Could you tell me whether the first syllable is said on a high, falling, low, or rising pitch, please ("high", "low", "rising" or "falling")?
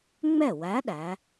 falling